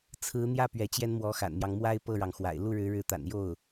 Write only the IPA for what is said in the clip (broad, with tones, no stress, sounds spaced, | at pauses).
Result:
t͡sʰ ɹ̩˧˥ n̪ j ä˥˩ p ɥ ɛ˧˥ t͡ɕ j ɛ˥ n m w ɔ˧˥ x a̰˨˩ n m j ɑ˦ ŋ m w a˥ ɪ̯ p ɤ˥˩ ɻ ɑ˩ ŋ x w a̰˨˩ ɪ̯ l u˥˩ ɻ ɻ̩˧˥ ɻ ɻ̩˧˥ t̪ a̰˨˩ n j o˥˩ ʊ̯